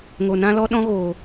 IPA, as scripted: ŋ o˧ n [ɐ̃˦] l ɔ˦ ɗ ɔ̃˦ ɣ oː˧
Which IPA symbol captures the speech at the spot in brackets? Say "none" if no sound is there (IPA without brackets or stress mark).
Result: ã˦